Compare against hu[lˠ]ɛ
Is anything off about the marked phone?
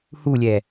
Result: yes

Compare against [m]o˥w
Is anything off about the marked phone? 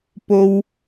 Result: yes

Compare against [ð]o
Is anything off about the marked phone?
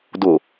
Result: yes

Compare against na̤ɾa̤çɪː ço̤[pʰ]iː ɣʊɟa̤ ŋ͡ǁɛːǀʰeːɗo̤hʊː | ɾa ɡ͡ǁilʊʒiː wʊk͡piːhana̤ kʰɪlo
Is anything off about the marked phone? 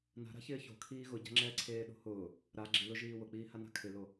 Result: yes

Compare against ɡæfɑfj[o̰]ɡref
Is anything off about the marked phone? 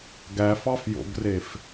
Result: no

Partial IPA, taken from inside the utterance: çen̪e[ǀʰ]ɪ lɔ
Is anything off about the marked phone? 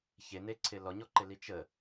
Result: no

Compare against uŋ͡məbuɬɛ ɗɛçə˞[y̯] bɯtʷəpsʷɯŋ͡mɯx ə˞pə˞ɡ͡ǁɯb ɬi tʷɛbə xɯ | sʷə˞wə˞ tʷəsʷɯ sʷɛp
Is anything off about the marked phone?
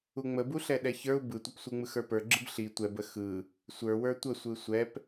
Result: yes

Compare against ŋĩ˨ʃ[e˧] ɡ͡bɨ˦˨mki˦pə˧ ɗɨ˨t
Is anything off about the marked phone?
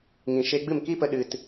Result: no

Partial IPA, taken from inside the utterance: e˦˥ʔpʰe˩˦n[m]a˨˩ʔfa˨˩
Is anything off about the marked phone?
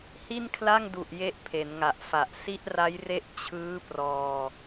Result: yes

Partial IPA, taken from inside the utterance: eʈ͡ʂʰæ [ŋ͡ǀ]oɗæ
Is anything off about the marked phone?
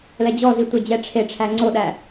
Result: no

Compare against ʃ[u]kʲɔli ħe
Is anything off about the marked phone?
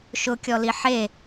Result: yes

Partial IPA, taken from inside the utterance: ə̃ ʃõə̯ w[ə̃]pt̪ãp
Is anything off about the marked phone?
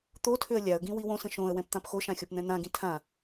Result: yes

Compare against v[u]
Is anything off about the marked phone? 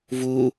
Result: no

